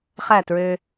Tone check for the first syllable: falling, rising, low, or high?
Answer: falling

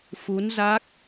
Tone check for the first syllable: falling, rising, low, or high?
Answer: rising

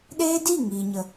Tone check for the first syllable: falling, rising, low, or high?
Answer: high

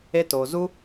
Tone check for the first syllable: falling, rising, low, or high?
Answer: high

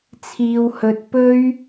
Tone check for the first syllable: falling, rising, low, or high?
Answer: low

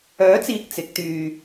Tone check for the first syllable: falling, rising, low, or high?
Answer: rising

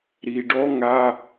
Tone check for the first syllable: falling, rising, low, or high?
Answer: low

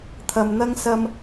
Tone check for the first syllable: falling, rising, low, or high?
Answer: low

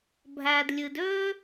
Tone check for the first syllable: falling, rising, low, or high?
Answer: low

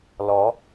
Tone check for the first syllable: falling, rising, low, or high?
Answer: rising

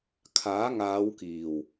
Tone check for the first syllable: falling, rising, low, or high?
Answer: rising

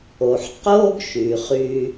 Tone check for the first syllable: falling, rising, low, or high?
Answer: low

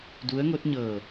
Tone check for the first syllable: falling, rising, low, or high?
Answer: rising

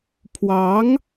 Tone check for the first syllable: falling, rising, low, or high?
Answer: rising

